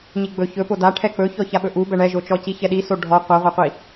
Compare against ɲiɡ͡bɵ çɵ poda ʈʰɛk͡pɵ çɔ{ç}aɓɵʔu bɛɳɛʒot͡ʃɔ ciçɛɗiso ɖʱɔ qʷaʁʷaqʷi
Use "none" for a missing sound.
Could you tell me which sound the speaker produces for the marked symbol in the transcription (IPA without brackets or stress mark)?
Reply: ç